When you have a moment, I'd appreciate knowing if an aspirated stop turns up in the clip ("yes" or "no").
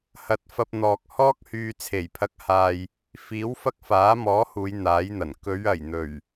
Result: yes